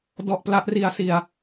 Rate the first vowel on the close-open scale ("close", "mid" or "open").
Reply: mid